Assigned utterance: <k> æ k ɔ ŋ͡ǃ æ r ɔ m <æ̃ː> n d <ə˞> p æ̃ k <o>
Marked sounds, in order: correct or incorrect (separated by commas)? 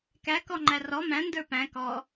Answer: correct, incorrect, correct, incorrect